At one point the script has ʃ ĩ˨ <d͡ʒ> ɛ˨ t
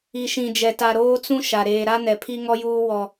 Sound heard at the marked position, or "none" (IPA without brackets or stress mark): d͡ʒ